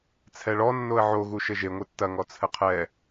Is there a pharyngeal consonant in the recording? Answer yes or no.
yes